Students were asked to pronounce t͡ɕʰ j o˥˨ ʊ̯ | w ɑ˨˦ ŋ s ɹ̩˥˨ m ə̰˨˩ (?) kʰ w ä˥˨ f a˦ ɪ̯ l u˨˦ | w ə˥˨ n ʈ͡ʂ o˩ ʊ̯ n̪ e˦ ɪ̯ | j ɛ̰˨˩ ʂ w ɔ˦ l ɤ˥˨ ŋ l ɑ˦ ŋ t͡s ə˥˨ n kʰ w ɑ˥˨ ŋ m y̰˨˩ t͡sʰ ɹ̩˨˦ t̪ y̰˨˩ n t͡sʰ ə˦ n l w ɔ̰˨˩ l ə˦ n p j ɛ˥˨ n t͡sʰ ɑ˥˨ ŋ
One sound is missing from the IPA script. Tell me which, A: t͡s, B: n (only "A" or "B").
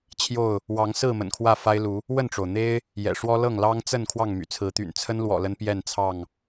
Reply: B